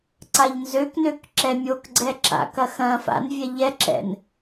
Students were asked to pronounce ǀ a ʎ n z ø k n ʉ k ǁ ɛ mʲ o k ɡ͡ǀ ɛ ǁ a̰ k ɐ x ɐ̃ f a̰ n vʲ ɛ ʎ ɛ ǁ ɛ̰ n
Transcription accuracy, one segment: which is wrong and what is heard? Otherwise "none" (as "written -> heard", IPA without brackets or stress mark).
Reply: ʉ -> ø